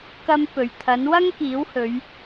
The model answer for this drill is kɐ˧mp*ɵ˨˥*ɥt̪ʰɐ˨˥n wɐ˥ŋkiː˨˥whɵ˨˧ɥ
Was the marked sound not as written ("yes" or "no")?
yes